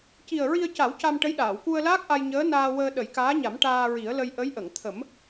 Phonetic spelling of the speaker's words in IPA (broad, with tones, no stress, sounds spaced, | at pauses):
c i˨˩ ə̯ ɹ i˧ ə̯ c a˨˩˦ w c a˧ m ʈ ə˧˥ j ɗ aː˨˩˨ w k u˧ ə̯ l aː˦˥ k̚ ʔ a˧ j ɲ əː˧˥ n aː˧ w əː˧ ɗ ə˨˩˦ j k aː˧˥ ɲ a˨˩˦ m ʈ aː˧ ɹ i˨˩˦ ə̯ l ə˧ j ʔ ə˧˥ j ʔ ə˨˩˨ ŋ t̪ʰ ə˨˩˦ m